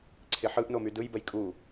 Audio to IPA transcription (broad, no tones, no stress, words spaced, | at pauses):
ǀʰɪħɯʔno mydɯjbəj kʼu